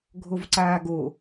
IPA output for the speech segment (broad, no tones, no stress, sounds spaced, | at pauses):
ɡʱ o v ǀ aː ɡ o